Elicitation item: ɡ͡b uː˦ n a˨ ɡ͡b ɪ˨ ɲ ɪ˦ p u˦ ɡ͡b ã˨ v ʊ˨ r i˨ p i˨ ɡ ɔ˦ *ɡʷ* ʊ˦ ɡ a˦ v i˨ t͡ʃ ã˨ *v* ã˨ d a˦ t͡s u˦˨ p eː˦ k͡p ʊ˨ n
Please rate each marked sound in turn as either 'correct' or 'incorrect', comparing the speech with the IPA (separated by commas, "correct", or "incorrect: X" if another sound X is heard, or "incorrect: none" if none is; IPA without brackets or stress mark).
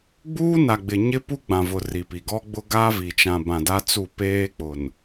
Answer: incorrect: ɡ͡b, incorrect: b